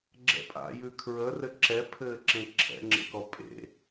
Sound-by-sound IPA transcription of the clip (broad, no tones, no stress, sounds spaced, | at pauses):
ɡ͡ǁ ɛ̰ pʼ a̰ j ʉ kʰ ɹ ə r ɘ ǁ ɛ pʰ ɘː ǁ ẽ ǁʰ ɛ̰ ŋ͡ǁ ḛ k ɔ pʼ ḛ